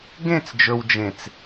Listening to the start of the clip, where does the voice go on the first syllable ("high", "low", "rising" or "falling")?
falling